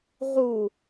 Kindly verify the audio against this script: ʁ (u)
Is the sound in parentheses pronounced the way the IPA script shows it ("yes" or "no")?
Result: yes